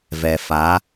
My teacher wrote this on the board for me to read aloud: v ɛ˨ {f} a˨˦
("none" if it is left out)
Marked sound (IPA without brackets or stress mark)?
f